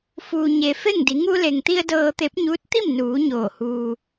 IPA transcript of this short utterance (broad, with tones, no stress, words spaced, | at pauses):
fuː˩ɲe˩ fe˥˨ŋdi˩˧ ŋu˧le˩ŋt̪i˧ə̯ dɤː˧ t̪e˧˥p̚ɲuː˧˥t̚ t̪i˥˨mnuː˩˧ ɲoː˧˩huː˧